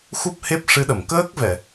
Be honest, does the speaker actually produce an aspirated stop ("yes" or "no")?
no